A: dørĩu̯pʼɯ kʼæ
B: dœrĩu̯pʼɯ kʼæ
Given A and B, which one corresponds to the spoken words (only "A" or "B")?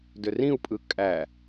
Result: A